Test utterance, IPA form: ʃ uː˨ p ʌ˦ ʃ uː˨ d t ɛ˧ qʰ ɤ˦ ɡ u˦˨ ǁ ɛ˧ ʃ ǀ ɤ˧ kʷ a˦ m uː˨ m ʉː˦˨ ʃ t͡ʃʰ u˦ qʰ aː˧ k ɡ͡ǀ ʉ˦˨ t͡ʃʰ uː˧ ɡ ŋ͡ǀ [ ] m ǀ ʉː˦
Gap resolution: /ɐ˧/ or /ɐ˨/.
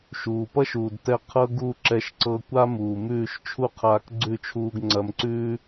ɐ˧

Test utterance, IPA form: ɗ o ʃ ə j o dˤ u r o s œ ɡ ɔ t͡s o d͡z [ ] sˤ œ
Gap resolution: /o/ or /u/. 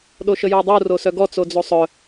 o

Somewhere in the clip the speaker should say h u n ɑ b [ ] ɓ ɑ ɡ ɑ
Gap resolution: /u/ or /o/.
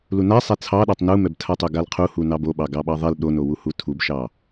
o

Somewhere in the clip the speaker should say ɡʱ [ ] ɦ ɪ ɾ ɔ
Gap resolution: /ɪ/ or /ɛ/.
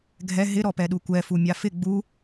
ɛ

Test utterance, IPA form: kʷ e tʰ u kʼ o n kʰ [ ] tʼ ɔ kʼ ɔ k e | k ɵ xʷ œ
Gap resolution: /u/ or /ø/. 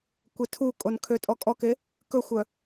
ø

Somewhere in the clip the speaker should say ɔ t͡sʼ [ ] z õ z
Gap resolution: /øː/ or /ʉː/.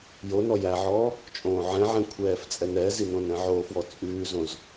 ʉː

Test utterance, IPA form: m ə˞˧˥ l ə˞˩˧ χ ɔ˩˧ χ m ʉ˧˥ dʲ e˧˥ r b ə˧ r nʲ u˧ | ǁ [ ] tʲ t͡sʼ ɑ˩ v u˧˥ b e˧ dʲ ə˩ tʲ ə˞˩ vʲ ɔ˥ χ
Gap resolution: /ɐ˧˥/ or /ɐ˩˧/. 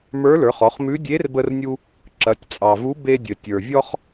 ɐ˩˧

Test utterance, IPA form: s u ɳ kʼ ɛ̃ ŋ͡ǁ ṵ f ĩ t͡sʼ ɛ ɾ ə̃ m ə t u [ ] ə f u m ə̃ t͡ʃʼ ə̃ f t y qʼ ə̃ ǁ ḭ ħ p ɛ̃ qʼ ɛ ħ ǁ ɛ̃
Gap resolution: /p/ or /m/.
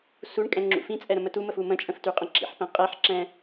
m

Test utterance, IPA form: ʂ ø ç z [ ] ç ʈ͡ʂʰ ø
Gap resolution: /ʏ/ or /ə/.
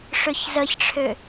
ə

